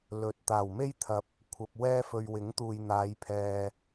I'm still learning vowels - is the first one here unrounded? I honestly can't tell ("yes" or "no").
no